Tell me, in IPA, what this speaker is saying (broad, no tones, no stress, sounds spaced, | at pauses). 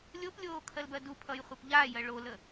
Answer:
lʲ o p lʲ oː kʰ ɜ l b ɜ d u pʰ ʌ j χʷ e p ʎ aː j ɜ ɭ o l ə